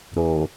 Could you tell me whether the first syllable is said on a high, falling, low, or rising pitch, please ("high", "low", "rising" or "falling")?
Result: low